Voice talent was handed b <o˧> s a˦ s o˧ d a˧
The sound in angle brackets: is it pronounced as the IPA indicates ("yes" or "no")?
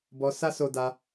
no